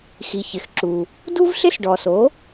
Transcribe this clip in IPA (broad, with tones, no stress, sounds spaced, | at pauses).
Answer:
x i˩ ç ɪ˩ x ǁ u˩ | d u˥ v ɬ ɪ˥ s ɖ ɔ˩ s o˩˥